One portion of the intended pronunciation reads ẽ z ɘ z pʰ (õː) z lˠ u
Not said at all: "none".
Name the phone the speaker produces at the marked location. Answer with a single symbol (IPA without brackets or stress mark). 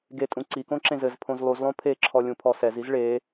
õ